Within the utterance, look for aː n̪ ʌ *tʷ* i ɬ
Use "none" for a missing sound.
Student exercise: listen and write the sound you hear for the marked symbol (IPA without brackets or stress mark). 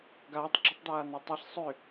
tˤ